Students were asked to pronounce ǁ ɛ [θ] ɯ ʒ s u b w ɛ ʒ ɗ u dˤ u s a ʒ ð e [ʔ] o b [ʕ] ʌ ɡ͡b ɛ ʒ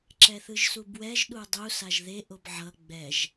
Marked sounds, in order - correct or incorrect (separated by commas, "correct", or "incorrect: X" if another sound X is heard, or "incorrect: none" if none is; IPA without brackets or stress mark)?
correct, correct, correct